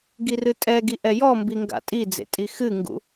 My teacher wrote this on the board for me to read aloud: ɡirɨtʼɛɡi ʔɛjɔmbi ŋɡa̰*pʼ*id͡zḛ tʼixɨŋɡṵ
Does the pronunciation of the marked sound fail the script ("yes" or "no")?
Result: yes